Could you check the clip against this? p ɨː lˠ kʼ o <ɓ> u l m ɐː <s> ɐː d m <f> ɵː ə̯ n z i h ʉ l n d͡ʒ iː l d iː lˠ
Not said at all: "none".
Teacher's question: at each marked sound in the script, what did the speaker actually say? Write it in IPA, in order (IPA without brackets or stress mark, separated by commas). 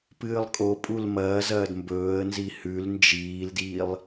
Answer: pʼ, z, b